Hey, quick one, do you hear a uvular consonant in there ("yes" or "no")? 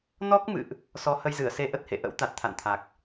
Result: no